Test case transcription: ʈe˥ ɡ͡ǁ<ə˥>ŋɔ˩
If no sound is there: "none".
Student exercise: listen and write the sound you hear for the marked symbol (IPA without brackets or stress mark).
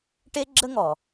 ə˥